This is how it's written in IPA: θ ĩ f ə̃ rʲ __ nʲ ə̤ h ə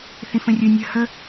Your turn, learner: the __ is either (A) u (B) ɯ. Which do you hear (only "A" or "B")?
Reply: B